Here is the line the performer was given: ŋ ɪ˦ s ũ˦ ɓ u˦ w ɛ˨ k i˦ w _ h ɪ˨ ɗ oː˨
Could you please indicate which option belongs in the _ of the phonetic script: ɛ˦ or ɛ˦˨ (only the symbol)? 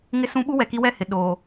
ɛ˦˨